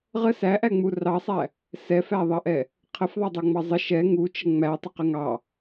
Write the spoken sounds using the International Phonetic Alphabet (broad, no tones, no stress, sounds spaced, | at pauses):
ʁ ə s æ ʔ æ ŋ͡m u r ɑ sˤ æ | s ɛ f æ ðˤ ɑ ʔ ɛ | qʰ ə f ðˤ æ dˤ o ŋ͡m ɑ zˤ ə ʃ ɛ ŋ u t͡ʃ ə ŋ͡m æ tˤ ə q ə ŋ ɑ